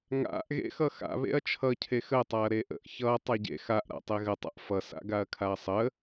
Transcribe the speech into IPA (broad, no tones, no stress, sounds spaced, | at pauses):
ŋ a̰ ʔ ɣ ḛ x ʌ x a̰ β ḛ ɐ̯ t͡ʃʰ ʌ cʰ e x ə tˤ a ɐ̯ ɾ e ʔ ə̰ ʔ ç ʌ tˤ a ɟ ḛ x a ʔ ɾ a̰ tˤ e ɣ ə tˤ a̰ ʔ f ʌ s a̰ ɡ a ɐ̯ kʰ a ɐ̯ sˤ ə